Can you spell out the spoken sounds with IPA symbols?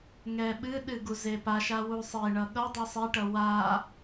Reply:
ŋ ɛ ɓ ɨ ɗ ɨ ɡ u z e p a ʃ a w u sˤ e ɳ ʌ ɠ ʌ dˤ u sˤ e ʈ ʌ w a

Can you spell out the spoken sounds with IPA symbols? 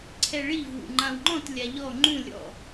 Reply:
ǀʰ ɛ ɭ i v w ṵ ŋ͡ǃ ã w ŋ͡ǃ ɔ̃ t lʲ a ʎ ɔ ŋ͡ǃ ũ lʲ ɔ̰

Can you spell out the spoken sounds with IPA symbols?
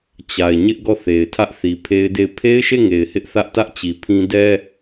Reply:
t͡ɕ a˨ ɪ̯ ɲ ɪ˦ ʔ ɡ ɔ˦˨ θ e˨ ɪ̯ tʰ ä˦ ʔ θ i˨ pʰ e˦ ɪ̯ d e˦˨ ɪ̯ pʰ e˦ ɪ̯ ʃ e˦˨ ŋ e˨ ɪ̯ h ɪ˦ ʔ θ ä˦ ʔ t ä˦ ʔ t͡ɕ i˨ pʰ ĩ˦ d ɛ˦

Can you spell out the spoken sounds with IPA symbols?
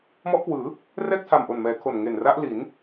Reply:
m ɔ˦˥ ʔ k w ɯː˩˦ | r ɛː˥˩ k̚ tʰ a˨˩ m ʔ o˨˩ n m ɛː˩˦ kʰ o˨˩ n ŋ e˨˩ n r a˦˥ ʔ l i˩˦ n

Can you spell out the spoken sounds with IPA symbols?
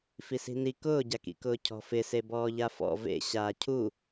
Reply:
f i s i̤ n i k ʊː ɟ a k ḭ k ʊː cʰ ɔ̤ f ɪ s e b ɔː ʎ a f ɔ̰ v ḛ ɕ aː cʰ u

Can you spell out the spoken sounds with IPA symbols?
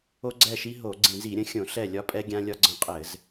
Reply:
o˦ ɡ͡ǀ ɛ˦˨ ʃ i˦ ɦ o˧˩˧ ɡ͡ǀ ĩ˧˩˧ z i˧˩˧ ɾʲ ə̃˦ xʲ õ˧˩˧ ɬ ɛ˦˨ lʲ ɒ˦ pʼ ɛ˦ ɡʲ ã˦ lʲ ɒ˦ ɡ͡ǀ ə̃˦ qʼ ɘ˧˩˧ z

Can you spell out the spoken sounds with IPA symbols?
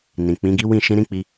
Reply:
n ĩ˨ k͡p ĩ˨˦ ɡ i˦ w ĩ˦˨ ʃ ĩ˧ ɾ ĩ˦ k͡p i˧

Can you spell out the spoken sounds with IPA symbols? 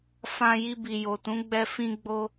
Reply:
f ã˧ j i˧ b i˨ j o˨ t ũ˨˦ ɡ͡b ɛ˧ f ĩ˧ ɡ͡b o˧

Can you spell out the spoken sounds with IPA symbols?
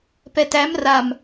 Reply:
p ɛ t æ m r a m

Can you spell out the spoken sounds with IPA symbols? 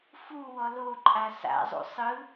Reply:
f u w ɔ l o ǃʼ a s a̰ zˤ ṵ sˤ ɯ

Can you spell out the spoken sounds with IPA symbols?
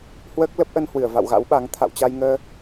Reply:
h w əː˦˥ k̚ l ə˦˥ p̚ ʔ ə˧ n h w ɨ˧˩ ə̯ v a̰˧˨ w ɣ a̰˧˥ w ɓ a˨˦ ŋ t̪ʰ a̰˧˨ w t͡ɕ a˧ j ŋ əː˧

